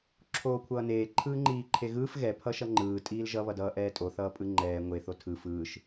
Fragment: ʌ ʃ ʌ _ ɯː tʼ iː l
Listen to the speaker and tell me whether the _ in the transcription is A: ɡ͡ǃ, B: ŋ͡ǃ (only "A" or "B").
B